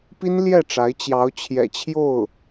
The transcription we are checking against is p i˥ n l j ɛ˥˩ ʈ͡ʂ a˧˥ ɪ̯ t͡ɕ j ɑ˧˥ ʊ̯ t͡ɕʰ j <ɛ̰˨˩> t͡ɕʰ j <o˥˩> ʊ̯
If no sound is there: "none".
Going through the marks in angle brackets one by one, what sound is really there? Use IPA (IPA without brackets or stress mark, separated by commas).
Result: ɛ̰˨˩, o˥˩